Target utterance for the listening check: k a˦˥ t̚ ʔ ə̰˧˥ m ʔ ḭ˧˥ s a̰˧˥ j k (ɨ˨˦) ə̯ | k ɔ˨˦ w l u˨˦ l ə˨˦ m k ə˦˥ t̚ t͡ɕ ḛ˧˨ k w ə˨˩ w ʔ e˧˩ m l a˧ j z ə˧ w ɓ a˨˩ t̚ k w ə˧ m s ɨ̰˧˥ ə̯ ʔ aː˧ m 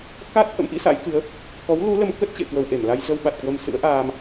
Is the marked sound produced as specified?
yes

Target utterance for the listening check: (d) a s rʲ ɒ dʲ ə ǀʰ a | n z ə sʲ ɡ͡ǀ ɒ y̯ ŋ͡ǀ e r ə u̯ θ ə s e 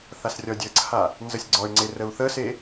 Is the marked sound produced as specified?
no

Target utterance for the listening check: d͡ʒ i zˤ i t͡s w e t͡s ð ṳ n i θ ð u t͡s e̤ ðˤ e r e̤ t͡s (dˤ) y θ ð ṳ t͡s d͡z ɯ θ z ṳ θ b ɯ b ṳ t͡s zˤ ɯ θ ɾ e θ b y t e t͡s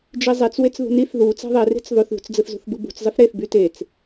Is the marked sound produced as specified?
no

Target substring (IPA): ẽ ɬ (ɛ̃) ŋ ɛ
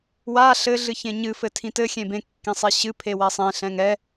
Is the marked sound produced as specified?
yes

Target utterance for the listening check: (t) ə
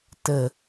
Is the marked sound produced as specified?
yes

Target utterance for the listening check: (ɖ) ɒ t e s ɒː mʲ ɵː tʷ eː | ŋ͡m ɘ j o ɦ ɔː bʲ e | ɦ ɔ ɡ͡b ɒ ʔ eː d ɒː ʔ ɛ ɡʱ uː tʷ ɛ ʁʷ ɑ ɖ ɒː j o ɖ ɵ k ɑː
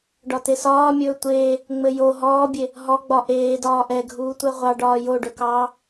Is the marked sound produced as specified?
yes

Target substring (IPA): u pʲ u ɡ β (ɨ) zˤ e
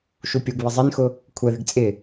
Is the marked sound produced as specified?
no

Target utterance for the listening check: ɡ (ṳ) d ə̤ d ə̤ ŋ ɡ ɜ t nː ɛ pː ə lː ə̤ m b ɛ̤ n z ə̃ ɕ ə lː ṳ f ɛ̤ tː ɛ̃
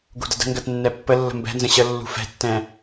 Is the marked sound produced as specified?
yes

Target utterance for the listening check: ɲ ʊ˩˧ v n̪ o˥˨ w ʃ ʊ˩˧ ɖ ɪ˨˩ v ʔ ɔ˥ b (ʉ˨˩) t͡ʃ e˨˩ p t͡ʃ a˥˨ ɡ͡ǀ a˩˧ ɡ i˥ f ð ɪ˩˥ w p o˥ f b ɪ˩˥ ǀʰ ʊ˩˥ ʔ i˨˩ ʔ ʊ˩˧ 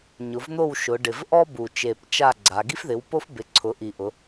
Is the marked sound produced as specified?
no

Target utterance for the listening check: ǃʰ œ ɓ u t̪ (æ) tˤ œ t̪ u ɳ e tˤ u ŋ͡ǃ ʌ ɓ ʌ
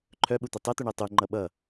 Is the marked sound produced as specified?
no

